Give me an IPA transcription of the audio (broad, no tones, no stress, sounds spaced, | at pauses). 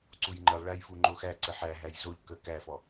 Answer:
ǀ u j ŋ͡ǃ ə lˠ ɭ æ j f u ŋ͡ǃ o x æ ǀ ə ħ æ ɦ æ j z o ʎ k ə k æ f ɔ